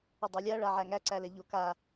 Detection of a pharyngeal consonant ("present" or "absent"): present